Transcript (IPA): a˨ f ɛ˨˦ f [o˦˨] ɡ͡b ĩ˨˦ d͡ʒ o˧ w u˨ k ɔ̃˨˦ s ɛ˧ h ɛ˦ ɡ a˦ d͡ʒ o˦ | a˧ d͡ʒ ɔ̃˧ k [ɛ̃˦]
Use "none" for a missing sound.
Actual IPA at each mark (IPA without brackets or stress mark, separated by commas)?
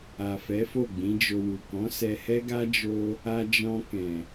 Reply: o˦˨, ɛ̃˨